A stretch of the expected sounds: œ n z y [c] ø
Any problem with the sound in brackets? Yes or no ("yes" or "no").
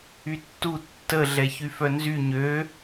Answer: yes